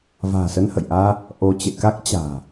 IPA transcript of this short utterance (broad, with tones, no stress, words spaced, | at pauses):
va̤ː˨˩sə˧nhə̰˧˨jʔaː˧ | ʔo˧ t͡ɕḛ˧˨ka˦˥k̚ t͡ɕa̤ː˨˩